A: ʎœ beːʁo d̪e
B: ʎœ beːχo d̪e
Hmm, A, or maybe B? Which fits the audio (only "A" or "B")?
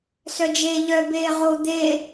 A